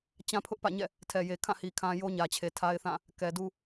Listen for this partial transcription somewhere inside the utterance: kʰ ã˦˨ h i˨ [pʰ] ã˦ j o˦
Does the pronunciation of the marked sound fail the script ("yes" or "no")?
yes